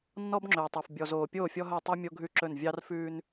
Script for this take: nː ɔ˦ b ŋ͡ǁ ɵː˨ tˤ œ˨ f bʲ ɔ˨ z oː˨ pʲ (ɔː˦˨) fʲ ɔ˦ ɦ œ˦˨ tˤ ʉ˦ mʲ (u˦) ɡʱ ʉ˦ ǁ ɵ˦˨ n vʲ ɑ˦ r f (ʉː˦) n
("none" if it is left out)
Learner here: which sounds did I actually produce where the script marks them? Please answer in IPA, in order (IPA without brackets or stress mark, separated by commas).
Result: oː˦˨, o˦, ʉː˦